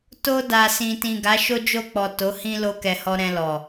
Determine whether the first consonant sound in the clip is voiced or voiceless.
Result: voiceless